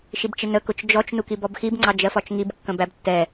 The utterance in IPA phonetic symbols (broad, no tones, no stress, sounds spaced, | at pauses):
ʃ i b t͡ʃ ɪ n ə k ʊ t͡ʃ d͡ʒ ɔ t͡ʃ n u k i b ɔ b x i b ŋ͡ǀ ɑ d͡ʒ ɜ f ɒ t͡ʃ ŋ i b kː ə̃ b æ b tː ɛ